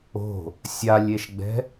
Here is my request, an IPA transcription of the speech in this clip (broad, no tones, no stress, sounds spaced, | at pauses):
o̤ | sʲ a lʲ e ʃ ɡ͡b ɛ̤